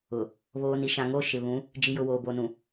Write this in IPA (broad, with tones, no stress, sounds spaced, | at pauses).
ʊ˨ | β oː˨ n i˨ ʃ ã˨ ŋ o˦˨ ʃ ɪ˨ β ũ˨˦ | d͡ʒ i˨ j ʊ˨ w oː˨ b o˨ n ũ˨